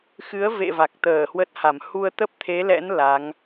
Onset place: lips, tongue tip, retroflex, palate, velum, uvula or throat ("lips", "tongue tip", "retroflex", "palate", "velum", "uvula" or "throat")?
velum